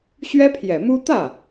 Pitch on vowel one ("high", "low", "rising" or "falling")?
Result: high